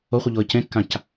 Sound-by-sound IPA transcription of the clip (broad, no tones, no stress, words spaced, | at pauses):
oχʷiʎoə̯ cẽkːãc